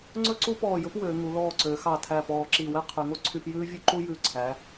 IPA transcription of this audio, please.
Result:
ŋ͡ǀ ɵ˥ ǀ u˥ p ɔː˧˩ j ɵ˥ p w øː˩˧ ŋ u˩˧ l ɔː˧˩ ǀ ø˩˧ x ɑ˧˩ tʰ æ˧˩ p ɔː˧˩ ǁ i˧˩ w ɛ˥ qʰ y˩˧ ŋ o˥ ǀʰ y˧˥˧ p j ʉː˥ vʲ ʉ˥ ǃ u˥ j ʉ˧˩ ǀʰ æ˩˧

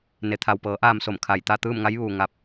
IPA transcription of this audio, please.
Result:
n e˩ t̪ʰ a˩ w p ɤː˩˧ ʔ aː˧ m s o˧˩ m kʰ a˧˩ j t̪ a˥˨ t̪ ɯː˥˨ m ŋ a˧˥ j ʋ uː˩ ŋ a˧ p̚

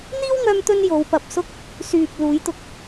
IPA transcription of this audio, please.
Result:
n̪ iː˥ w ŋ œː˧ m t̪ ɵ˧ n j o˨˧ w p ɐ˨ p̚ s ʊ˥ k̚ | s yː˨ p̚ l uː˨˧ j t̪ ʊ˧ k̚

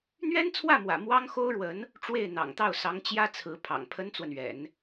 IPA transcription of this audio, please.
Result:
n̪ ɥ ɛ˥ n t͡sʰ w ä˥˩ m w ä̰˨˩ m w ɑ˥ ŋ x o˥ ʊ̯ ɻ w ə˧˥ n | ʈ͡ʂ w e˥˩ ɪ̯ n̪ ɑ̰˨˩ ŋ t̪ ɑ˥˩ ʊ̯ s ɑ˧˥ ŋ t͡ɕ j ä˥ t͡sʰ ɹ̩˧˥ pʰ ɑ̰˨˩ ŋ pʰ ə˥ n t͡s w ə˨ n ɥ ɛ̰˨˩˦ n

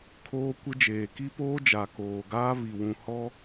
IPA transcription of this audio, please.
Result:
kʰ oː˦ kʷ ɪ˦ d͡ʒ eː˨ k i˦ p oː˦ d͡ʒ a˨ k oː˨ ɡ aː˦ β i˨ w ũ˨ h ɔ˦

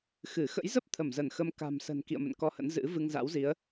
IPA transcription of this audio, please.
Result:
x ɨ˧˩ x ə̰˧˥ j z ə˦˥ p̚ t̪ʰ ə˧˩ m z ə˧˩ n x ə˧ m k a̤˨˩ m s ə̤˨˩ n k ḭ˧˨ ə̯ m ə̰˧˨ n k ɔ˧ h ə̰˧˥ n z ɨ̰˧˥ v ɨ˧ ŋ z a̰˧˥ w z i˨˦ ə̯

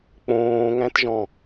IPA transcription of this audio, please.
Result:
k͡p õː ŋ æ̃ t ʒ ɔ̃

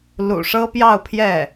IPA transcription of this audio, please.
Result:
l ṵ˨˩ ʂ ɤ˥ p j ɑ˥˧ ʊ̯ pʰ j ɛ˥˩

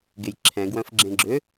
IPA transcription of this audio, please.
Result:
ɡ e j ǁʰ ɛ̃ ɡ w œ̃ f ɡ͡ǁ ẽ ɡ͡ǁ ʏ

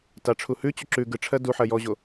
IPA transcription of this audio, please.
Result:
t a ʈ͡ʂʰ u h ʉ t͡ɕ u ǁ ʉ ɡ ɯ ʈ͡ʂʰ ɜ d u ħ ɜ j ɔ ʑ o

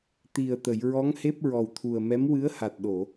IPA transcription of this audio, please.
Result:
t̪ i˨˩ ə̯ t̪ ə˨˩˨ j ɹ ɔ˧˥ ŋ h e˦˥ p̚ ɹ ɔ˨˩ w t̪ʰ u˨˩ ə̯ m ɛ˧˥ m w ɨ˧˥ ə̯ h a˨˩ t̚ ɗ o˨˩˨

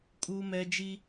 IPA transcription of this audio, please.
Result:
kʼ uː˦ m ɛ˦ d͡ʒ i˦

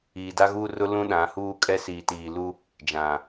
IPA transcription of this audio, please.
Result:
iː˨ d a˦ ɣ uː˦ r ʊ˦ l ũ˦ ɗ ã˨˦ h uː˦ kʼ ɛ˦ s iː˨ t iː˨ l u˦ | d͡ʒ ã˨

